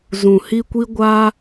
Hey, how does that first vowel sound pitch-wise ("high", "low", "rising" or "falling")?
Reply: low